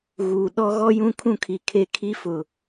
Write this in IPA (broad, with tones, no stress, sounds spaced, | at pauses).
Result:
ɣ uː˨ ɗ ɔ˦ ɣ ɔ˦ j ũ˦ kʰ ũ˦ kʰ i˨ kʰ e˦ kʰ i˦ f ʊ˨